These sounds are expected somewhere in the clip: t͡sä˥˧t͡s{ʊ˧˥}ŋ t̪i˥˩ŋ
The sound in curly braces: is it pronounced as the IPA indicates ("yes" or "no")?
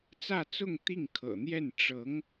no